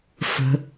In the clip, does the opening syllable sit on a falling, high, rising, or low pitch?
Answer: high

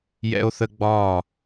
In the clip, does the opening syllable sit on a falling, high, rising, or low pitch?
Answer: high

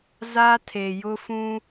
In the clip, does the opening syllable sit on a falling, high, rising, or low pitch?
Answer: high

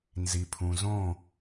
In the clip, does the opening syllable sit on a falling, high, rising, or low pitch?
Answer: low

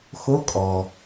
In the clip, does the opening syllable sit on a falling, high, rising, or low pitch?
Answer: rising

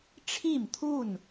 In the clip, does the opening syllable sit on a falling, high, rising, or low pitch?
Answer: falling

